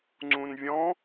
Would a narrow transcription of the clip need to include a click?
yes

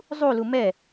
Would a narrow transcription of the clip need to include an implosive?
no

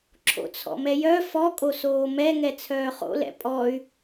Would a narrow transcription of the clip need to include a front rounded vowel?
yes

